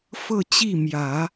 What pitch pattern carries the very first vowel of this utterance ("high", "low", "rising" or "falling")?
falling